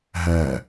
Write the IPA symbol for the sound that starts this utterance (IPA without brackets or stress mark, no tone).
ɦ